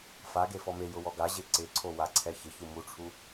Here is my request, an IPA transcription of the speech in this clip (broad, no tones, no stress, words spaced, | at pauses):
fa ɡefɔmejʊ wɔɡaʑe ǀɪǀʰo waǀʰɛçɪçu muʈ͡ʂʰu